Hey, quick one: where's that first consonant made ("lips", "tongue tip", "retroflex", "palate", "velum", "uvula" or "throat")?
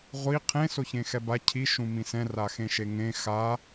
uvula